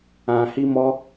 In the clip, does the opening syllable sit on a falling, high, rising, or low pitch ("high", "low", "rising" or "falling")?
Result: low